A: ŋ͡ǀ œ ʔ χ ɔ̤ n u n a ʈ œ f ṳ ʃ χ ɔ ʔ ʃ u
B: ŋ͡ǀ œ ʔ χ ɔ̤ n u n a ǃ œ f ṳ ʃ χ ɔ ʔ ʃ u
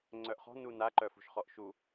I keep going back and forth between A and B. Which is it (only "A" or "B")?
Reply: B